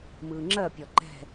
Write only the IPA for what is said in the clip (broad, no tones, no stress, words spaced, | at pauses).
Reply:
mɯːŋ͡ǁɜ pʲɔǃɛ̤